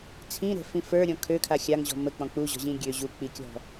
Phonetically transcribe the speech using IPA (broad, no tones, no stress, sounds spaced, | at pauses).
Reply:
t͡sʰ ĩ ɾ ɛ̤ f ĩ f ə˞ ɾʲ ɔ̃ kʰ ø kʰ a xʲ a ŋ ʑ ɔ̤ m ə k͡p ɔ̃ k͡p u ʑ ɔ̤ ʑ ĩ ɡʲ ø ʑ u k͡p i kʲ ɔ̤